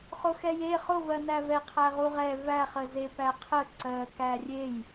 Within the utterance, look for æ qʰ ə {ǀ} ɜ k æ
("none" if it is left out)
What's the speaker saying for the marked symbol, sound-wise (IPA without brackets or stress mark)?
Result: ǀ